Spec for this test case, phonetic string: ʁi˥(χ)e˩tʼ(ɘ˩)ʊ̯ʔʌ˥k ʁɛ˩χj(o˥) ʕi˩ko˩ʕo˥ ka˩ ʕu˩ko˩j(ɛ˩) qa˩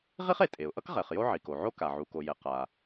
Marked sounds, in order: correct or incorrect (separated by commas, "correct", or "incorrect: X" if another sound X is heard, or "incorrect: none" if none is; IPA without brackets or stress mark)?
correct, incorrect: e˩, correct, correct